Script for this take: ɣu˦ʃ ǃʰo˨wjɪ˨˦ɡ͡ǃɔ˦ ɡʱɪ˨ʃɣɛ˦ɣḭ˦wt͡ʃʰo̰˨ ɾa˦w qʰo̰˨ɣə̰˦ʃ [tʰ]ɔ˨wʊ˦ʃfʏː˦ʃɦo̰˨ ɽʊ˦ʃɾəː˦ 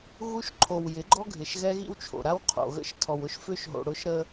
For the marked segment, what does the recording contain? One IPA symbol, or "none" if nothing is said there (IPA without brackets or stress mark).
tʰ